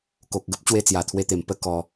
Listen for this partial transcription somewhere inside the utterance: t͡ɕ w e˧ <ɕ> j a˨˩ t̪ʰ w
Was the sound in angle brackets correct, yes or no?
no